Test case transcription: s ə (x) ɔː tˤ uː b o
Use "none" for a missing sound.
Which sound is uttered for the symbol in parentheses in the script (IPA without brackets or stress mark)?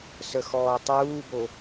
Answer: x